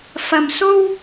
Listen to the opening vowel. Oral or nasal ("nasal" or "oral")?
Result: oral